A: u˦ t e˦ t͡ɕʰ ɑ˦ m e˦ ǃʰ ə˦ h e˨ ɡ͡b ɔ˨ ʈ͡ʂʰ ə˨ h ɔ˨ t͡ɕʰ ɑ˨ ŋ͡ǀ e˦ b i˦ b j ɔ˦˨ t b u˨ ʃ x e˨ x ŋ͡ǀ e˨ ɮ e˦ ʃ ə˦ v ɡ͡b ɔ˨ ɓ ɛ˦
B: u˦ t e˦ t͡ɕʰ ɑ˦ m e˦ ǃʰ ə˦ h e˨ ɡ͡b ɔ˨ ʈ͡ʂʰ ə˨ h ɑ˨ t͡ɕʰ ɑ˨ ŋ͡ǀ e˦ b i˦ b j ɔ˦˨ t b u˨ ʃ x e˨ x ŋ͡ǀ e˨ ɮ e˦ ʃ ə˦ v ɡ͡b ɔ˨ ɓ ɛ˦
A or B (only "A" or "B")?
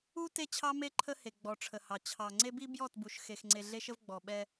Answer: B